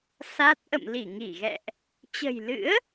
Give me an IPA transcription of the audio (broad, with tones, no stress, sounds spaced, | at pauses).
s a˦˥ t̚ ʔ ə̰˧˨ m l i˧˩ ŋ i˧˩ ɣ ɛ̰˧˨ ʔ | t͡ɕ ə̤˨˩ j l ɨ̰˧˥ ə̯